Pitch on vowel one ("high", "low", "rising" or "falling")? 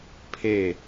falling